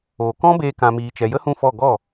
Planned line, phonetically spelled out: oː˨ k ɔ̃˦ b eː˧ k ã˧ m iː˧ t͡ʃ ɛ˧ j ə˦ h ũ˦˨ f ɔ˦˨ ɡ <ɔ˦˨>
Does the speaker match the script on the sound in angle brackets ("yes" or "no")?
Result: yes